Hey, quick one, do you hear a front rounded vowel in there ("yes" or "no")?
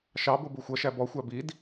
no